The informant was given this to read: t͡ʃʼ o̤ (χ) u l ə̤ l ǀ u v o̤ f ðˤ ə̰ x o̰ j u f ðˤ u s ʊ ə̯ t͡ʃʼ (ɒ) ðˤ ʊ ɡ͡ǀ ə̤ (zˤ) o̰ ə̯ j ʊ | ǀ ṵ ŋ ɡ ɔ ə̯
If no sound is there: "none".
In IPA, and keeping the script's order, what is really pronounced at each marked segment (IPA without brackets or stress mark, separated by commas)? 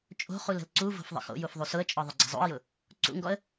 χ, ɒ, zˤ